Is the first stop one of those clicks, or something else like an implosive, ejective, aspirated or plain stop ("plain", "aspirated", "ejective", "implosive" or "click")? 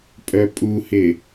ejective